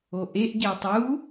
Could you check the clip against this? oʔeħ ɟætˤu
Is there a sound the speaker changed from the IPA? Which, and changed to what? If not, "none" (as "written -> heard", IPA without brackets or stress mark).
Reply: ħ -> ʔ